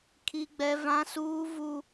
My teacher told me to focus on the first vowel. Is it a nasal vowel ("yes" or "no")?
no